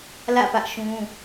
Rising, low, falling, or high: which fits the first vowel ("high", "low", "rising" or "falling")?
falling